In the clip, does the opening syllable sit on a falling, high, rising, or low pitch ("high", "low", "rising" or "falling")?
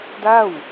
falling